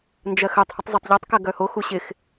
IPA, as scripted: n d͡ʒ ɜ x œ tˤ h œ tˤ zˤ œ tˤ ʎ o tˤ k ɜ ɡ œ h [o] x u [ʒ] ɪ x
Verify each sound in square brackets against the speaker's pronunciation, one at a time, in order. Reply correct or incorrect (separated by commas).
correct, incorrect